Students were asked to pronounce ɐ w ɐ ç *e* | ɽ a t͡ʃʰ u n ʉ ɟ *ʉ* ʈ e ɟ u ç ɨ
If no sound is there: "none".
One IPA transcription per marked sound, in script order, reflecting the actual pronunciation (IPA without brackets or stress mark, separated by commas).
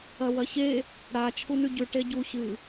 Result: e, ʉ